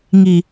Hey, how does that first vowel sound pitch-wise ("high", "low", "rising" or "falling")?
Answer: low